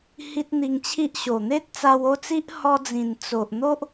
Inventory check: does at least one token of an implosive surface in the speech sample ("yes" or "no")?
no